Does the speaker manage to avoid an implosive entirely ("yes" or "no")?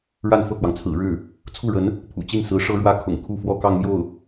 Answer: yes